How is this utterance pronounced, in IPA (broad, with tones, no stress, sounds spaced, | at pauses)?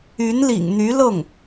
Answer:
y˧˥ n l ḭ˨˩ ŋ n̪ y˧˥ l ɤ˥˩ ŋ